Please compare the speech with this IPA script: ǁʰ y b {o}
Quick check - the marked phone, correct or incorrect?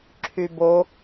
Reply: correct